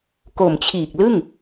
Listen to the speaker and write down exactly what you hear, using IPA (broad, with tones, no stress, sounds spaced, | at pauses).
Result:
k o˨˩ m t͡ɕʰ iː˨˩ k̚ l ɯ˥˩ ŋ